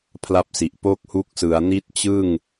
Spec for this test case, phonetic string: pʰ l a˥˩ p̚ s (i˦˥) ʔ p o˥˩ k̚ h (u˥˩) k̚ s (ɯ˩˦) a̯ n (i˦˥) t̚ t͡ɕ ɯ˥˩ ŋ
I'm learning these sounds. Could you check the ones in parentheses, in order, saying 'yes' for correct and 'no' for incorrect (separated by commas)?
no, no, yes, yes